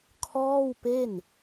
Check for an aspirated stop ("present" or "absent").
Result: present